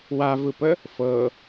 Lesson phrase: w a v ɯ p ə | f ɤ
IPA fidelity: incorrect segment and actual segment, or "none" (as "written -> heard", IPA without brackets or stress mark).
none